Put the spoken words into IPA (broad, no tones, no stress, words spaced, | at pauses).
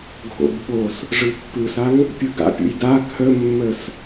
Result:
ɡʱo̰b ɓos | ʐɯpːɯsaŋ | pʲɯɡa̰pʲṵj da kʰəmːəs